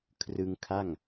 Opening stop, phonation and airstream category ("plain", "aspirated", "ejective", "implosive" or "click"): aspirated